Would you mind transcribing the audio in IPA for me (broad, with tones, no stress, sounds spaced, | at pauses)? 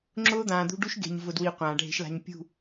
ŋ͡ǁ ʊː˦ d̪ ãː˨ d̪ ṳ˦ ɖ u˦ ʃ ɡ e̤˨ ɲ v ʊ˨ d w i˨ qʷ ãː˨ ɖʱ e̤˦ ʃ l a̤˦ ɲ pʲ ṳ˦˨